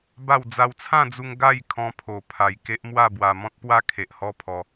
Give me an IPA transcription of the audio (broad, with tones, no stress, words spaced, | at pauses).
ba˥˧w d͡za˧wt͡sʰã˥˧d͡zu˧ŋ ɡa˥˧jkʰɔ̃˧ pʰo˨˩pʰa˨˩j ke˦ʔmwa˥˧ bwa˧ mɔ̃˦t̚pwa˦ kʰe˨ʔhɔ˦ pʰɔ˧